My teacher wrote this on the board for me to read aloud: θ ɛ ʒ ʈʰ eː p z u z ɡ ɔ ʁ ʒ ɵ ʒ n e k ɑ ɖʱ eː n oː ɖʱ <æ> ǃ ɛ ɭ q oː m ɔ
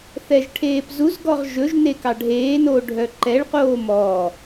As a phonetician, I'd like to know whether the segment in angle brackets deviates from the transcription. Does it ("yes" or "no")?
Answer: yes